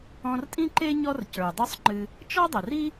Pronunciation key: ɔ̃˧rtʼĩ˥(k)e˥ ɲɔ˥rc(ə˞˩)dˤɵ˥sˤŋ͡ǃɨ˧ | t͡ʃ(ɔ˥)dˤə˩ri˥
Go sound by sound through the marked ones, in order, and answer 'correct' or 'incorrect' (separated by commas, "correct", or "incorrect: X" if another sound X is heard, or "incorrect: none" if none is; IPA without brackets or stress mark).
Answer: incorrect: ǃ, correct, correct